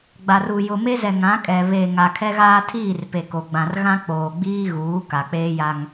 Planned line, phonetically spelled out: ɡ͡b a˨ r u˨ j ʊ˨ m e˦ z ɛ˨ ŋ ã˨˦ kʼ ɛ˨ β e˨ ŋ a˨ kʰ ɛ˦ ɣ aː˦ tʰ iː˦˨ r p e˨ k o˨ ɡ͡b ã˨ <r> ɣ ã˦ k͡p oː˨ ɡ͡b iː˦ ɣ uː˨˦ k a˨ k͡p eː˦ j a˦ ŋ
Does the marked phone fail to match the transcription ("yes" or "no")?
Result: no